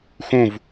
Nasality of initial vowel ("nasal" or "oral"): nasal